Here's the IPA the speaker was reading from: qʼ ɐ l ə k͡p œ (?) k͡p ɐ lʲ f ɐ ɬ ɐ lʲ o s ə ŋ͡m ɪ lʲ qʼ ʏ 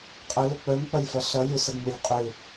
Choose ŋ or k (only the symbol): ŋ